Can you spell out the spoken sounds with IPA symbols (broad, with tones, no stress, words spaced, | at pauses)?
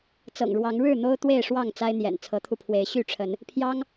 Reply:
t͡sɤ̰˨˩ŋɻwɑ˨˦ŋɻɻ̩˥˨ n̪o˦ʊ̯t̪we˥˨ɪ̯ʂwɑ˥˨ŋ t͡sa˦ɪ̯n̪jɛ̰˨˩n t͡sʰɤ˨˦t̪ʰu˧pʰwe˨˦ɪ̯ ɕy˥˨ʈ͡ʂʰə˨˦n | pʰjɑ˦ŋ